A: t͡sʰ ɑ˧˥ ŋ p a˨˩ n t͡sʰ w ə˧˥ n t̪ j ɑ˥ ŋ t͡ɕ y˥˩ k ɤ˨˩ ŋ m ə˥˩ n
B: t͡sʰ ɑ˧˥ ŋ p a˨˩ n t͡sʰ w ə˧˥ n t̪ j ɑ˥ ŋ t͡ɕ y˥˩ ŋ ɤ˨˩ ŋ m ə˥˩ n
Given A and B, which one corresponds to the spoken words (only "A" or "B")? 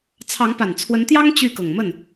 A